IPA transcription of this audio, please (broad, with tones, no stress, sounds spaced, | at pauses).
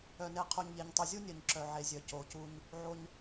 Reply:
œ˨ n e˨ qʰ u˨ ɲ ʎ e˨ ɲ tˤ u˨ zʲ u˦ nʲ œ˨ ɲ ǁ œ˨ ʕ e˨ zʲ œ˨ c o˨ c u˦ ɲ | ʕ o˦ ɲ